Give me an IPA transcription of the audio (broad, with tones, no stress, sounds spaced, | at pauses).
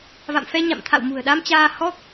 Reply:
v a̰˧˨ m f ɛ˧ ɲ a̰˧˨ m t̪ʰ a̰˧˨ w m ṳ˨˩ ə̯ ɗ a˧ m t͡ɕ aː˧ h ɔ˦˥ k̚